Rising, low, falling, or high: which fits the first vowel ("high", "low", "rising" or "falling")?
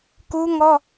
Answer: high